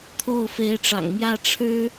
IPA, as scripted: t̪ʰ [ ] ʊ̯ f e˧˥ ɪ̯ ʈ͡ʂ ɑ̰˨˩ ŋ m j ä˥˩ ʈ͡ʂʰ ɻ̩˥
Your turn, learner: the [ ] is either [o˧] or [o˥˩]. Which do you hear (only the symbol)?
o˥˩